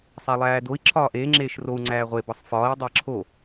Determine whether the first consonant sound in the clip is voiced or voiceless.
voiceless